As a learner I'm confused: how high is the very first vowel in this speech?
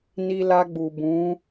high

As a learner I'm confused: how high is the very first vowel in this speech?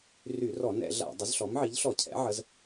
high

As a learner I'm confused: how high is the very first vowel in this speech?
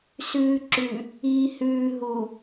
high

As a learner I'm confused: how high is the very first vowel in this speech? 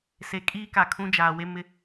mid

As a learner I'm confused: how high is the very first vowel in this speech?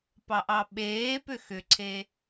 low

